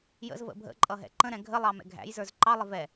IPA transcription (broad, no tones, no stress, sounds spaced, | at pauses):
j ə̰ z v ə̰ bʱ ə̰ ǃʼ ʌ ɦ ɛ̰ ǃ ə̃ ɾ ɛ̃ ɡʱ ə lˠ ɑ m ɛ̰ ɡʱ æ̰ j z ə˞ z ǃ ɑ lˠ ɪ v ɛ